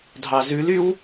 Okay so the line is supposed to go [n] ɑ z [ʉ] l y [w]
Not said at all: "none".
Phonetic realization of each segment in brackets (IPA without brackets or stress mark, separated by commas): dʱ, ʉ, w